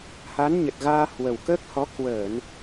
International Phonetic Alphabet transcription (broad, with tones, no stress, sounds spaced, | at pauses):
h a˨˦ n ɲ ə˨˩ t̚ ɣ aː˧ h w ə˨˩ w k əː˦˥ k̚ h ɔ˨˦ k w əː˧˩˨ n